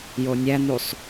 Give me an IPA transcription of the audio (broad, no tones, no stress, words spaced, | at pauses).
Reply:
jonʲæn̪usˤ